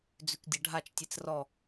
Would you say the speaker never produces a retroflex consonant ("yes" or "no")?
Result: no